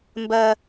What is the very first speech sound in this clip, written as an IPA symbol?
m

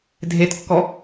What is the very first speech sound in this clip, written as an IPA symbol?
dʱ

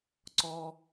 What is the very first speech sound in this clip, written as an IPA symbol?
ǀ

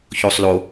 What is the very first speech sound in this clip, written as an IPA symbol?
ç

